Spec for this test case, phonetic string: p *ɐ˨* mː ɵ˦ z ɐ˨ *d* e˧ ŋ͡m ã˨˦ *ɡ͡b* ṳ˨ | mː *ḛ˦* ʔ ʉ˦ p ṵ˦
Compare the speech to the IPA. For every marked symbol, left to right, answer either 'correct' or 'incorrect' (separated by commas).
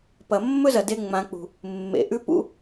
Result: correct, correct, incorrect, incorrect